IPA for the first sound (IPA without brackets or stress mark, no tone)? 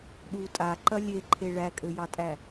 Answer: ɗ